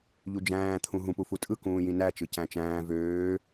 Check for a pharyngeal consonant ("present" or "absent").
absent